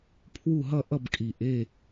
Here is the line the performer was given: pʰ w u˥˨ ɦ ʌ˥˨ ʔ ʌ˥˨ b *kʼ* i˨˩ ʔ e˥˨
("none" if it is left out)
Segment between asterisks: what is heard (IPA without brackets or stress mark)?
kʼ